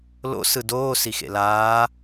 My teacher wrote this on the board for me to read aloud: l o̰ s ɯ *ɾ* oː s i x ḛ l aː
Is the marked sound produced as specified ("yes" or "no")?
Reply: no